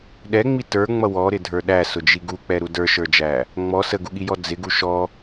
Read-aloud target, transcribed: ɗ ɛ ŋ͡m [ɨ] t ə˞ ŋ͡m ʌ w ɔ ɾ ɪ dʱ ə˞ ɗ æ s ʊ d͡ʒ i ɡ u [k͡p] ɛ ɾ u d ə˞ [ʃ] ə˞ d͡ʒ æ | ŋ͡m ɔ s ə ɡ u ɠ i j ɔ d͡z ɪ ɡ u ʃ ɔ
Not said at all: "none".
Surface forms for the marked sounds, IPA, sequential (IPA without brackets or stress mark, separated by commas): i, k͡p, ʃ